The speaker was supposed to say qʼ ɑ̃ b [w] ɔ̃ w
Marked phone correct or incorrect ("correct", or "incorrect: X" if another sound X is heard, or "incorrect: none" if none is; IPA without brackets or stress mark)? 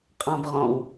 incorrect: ʁ